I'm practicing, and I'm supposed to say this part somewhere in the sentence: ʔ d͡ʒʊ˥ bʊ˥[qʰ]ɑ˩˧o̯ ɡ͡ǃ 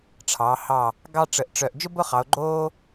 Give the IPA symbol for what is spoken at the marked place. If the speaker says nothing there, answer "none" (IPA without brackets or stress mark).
χ